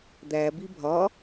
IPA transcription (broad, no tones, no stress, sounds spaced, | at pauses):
d̪ æ b i bʱ ɒ